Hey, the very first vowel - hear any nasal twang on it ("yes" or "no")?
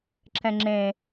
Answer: yes